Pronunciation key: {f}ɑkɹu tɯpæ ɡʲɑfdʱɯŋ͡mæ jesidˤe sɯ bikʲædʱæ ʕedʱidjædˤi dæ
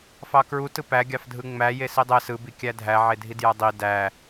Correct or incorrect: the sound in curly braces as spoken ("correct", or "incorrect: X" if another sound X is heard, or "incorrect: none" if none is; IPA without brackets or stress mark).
correct